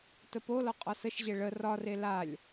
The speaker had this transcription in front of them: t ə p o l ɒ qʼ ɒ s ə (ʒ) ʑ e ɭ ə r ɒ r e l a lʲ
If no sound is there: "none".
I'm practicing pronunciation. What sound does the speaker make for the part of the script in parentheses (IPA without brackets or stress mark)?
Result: ʃ